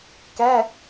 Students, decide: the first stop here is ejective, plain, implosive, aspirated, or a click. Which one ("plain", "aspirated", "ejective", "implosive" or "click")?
plain